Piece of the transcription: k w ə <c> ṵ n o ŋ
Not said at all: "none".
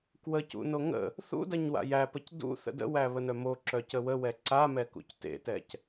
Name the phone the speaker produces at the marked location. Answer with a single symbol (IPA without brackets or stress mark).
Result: c